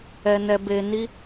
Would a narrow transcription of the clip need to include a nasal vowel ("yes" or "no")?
no